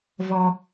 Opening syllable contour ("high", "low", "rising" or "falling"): low